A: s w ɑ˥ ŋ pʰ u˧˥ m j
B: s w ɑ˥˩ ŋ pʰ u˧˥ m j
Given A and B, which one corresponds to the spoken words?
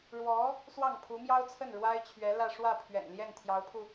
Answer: B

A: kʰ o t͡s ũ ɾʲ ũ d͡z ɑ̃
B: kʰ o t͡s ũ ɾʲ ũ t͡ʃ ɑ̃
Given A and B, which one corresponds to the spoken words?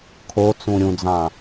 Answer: A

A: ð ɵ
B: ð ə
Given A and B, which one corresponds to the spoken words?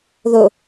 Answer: A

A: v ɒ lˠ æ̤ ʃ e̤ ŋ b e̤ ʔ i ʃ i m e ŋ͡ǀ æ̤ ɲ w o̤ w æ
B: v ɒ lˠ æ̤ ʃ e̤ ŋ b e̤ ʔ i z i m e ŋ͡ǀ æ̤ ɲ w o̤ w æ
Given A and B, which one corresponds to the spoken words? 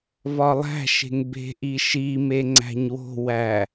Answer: A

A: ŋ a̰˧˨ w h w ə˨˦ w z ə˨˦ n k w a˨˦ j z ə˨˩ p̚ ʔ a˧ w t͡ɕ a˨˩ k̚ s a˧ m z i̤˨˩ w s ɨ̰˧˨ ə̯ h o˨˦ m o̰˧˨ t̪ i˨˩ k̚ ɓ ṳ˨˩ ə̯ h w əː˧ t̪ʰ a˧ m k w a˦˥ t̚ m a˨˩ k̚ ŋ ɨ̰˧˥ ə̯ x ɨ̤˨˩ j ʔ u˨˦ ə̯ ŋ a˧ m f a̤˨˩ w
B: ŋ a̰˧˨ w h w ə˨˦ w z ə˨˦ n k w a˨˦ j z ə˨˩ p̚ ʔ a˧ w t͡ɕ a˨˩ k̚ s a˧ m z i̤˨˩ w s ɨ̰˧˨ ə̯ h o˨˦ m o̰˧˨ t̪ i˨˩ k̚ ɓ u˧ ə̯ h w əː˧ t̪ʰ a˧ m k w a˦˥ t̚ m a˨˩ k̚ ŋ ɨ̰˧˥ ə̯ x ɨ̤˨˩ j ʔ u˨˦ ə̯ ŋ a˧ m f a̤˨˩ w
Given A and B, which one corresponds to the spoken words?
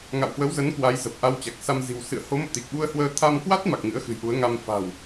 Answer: B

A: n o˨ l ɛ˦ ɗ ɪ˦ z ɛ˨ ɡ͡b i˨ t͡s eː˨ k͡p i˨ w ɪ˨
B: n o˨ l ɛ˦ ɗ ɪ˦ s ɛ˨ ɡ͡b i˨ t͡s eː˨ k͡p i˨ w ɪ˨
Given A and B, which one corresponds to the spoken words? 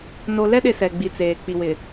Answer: B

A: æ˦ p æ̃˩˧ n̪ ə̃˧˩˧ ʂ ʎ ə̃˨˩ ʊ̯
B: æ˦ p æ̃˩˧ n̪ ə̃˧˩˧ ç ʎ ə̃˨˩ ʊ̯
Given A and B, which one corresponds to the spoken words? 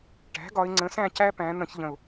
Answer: B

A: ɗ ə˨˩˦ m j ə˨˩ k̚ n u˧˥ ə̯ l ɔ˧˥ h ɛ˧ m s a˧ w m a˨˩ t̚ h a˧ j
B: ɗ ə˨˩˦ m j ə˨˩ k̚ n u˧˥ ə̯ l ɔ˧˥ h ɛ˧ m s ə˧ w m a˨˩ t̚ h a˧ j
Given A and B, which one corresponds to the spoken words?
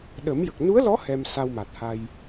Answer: A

